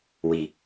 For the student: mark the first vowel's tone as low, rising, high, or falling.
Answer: low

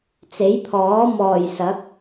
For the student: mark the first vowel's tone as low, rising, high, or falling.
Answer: rising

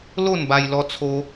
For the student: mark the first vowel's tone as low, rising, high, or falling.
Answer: falling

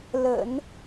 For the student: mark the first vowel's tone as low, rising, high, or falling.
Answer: low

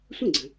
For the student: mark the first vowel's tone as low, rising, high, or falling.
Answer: falling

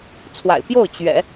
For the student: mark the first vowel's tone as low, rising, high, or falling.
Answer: low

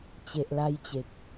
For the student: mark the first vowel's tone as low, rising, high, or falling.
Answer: low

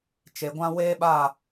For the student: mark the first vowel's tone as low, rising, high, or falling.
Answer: low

